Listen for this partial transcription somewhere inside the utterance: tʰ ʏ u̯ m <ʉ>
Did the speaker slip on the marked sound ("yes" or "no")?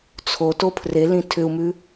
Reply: no